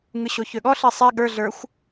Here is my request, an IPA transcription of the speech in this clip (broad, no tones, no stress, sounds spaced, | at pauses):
ŋ ɯ ɕ o ç ø ɠ ɔ ɬ i sˤ i ɠ ə˞ ɮ ə˞ xʷ